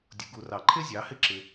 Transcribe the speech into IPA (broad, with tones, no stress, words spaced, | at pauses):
dʲʊ˧ɡu˧rɑ˧ ǃʰɪ˥ zʲɑ˩˥hɪ˥ ǁɪ˧